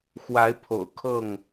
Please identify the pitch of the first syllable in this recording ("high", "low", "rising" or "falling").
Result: rising